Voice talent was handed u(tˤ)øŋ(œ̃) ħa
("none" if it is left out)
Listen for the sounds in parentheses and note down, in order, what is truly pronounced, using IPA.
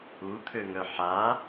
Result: t̪ʰ, œ

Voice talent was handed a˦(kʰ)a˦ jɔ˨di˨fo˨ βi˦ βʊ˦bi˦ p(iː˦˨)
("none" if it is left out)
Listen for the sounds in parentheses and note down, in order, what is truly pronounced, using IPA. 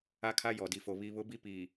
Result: kʰ, iː˨

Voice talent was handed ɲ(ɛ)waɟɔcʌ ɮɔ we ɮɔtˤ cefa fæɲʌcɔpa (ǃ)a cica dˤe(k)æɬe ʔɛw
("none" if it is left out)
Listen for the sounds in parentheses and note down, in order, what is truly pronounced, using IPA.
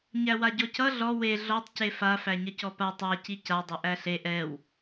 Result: æ, tˤ, ʔ

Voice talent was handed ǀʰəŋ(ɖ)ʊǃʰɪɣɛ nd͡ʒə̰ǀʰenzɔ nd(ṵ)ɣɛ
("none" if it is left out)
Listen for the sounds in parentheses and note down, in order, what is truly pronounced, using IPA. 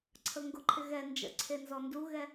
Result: ɡ, u

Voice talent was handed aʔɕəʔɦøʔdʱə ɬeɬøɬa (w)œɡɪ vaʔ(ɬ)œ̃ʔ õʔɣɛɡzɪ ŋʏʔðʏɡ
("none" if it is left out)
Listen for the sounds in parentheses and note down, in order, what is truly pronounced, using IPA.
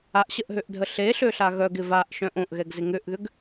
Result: ɣ, ʃ

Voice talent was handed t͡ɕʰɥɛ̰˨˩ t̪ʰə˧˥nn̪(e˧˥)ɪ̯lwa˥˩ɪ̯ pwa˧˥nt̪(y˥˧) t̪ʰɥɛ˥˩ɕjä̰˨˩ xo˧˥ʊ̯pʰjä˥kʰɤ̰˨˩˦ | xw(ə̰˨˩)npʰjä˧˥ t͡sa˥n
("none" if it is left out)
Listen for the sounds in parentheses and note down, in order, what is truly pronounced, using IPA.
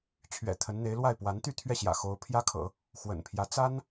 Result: e˧˥, y˥˧, ə̰˨˩

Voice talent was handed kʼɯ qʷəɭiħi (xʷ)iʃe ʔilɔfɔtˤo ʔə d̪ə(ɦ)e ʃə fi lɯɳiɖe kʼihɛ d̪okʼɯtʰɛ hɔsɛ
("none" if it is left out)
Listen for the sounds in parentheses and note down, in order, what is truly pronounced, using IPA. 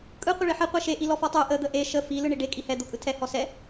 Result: qʷ, ʔ

